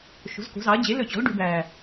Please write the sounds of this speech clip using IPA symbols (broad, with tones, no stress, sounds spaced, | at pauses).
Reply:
ʃ o̤˩˥ z k o̤˩˥ z ɑ˩˥ ɐ̯ d͡ʑ e˩˥ l ɵ˧˩ t͡ɕ ɔ̤˩˥ l ɖ ʉ˩˥ b æː˧˩